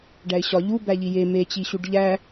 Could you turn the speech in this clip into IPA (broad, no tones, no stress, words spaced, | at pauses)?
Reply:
ɖæɪ̯ɕɒ ʎubæʎi je met͡ɕiɕuɖ ʎæ